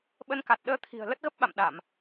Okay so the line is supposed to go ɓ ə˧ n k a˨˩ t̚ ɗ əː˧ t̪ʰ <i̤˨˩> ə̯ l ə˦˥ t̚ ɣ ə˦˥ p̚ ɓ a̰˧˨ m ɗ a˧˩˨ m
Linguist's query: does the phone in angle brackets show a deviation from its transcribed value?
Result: no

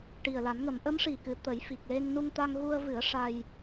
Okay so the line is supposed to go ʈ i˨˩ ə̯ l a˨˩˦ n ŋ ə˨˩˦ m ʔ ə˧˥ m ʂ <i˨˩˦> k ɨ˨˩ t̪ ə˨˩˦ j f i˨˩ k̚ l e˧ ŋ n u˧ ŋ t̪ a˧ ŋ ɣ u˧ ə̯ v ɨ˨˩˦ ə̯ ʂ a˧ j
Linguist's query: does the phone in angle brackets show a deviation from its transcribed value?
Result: yes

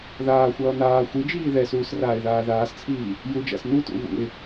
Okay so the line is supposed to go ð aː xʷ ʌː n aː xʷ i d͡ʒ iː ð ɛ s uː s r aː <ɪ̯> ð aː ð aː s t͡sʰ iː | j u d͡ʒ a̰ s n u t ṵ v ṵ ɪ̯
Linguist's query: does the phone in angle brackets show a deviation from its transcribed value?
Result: no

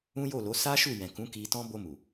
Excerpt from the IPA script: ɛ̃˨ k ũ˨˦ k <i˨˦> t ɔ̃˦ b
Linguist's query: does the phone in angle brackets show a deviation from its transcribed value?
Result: yes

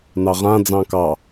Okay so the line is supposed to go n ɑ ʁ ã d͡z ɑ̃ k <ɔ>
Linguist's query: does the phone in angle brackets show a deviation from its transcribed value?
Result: yes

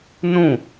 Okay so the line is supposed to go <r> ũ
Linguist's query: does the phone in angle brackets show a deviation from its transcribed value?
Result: yes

